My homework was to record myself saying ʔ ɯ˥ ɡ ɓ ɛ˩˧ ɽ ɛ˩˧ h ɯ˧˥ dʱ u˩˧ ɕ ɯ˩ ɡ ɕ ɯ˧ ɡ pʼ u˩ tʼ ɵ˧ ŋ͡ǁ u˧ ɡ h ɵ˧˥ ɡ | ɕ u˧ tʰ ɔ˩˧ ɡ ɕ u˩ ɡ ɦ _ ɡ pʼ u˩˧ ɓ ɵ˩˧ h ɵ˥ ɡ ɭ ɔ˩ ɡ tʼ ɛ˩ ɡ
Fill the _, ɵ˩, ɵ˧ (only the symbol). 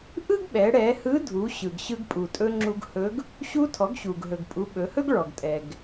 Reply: ɵ˩